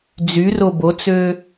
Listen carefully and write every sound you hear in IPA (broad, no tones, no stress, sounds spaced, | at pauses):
d͡z y r o b o t͡s ø